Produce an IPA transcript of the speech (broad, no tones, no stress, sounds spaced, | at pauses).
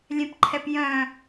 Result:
lʲ ɛ̃ p ǃʰ ɛ p j œ̃